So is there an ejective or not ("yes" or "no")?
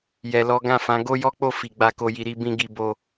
no